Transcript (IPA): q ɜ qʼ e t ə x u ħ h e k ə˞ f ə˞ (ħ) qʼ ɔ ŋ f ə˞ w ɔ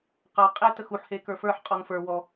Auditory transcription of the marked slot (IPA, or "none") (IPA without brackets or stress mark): ħ